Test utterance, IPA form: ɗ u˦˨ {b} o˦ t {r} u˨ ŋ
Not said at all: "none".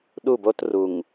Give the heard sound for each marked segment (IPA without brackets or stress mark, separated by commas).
b, r